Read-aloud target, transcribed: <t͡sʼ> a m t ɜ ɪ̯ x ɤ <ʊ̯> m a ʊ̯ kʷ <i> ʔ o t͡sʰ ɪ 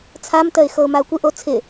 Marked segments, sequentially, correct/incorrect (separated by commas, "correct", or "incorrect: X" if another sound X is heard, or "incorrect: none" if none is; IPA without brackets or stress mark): incorrect: t͡sʰ, correct, incorrect: ɪ